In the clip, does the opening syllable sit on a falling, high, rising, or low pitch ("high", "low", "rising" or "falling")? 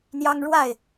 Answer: high